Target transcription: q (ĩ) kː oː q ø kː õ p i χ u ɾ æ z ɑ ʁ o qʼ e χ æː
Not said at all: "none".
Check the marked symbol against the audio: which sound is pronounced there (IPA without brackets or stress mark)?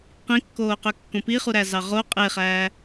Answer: ĩ